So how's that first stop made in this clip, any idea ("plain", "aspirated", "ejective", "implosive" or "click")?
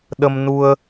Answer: implosive